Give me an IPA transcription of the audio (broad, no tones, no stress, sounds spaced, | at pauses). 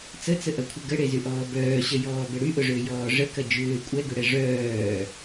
t͡s ə t͡s ə ʔ ɐ kʷʰ ə ɡ ə ɽ e z y ʔ ɔː b œː ɕ ə j ɔː b ə ɽ y ʔ ʊ ʐ ʏː j ɔː ʐ ə k ɐ d͡ʒ ʏː kʷʼ ɛ ɡ ʏ ɽ ɛ ʐ œː